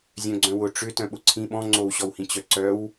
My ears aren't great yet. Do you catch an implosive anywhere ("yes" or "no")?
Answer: yes